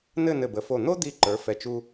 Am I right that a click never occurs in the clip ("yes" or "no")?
no